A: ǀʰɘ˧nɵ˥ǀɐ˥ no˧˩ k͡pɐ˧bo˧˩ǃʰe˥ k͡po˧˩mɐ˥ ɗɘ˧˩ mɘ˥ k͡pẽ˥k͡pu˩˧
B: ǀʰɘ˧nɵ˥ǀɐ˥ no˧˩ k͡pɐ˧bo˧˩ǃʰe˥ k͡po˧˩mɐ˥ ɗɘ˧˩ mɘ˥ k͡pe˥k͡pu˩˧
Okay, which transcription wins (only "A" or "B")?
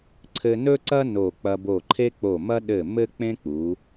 A